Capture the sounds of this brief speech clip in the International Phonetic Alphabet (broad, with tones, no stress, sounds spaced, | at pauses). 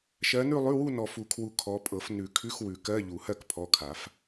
ʃ ɜ˨˦ n ʉ˥˧ lˠ ʉ˧˥˧ w u˥˧ n ɔ˨ f u˨˩˦ kʰ w u˨ kʰ ɔ˨˦ pʼ ɤ˨˩˦ f n ʉ˨˩˦ kʰ ʉ˧˥˧ x w ʉ˨˩˦ k ɜ˧˥˧ ʎ u˨˩˦ h ɜ˥˧ k pʰ ɔ˨˦ kʰ a˨˩˦ f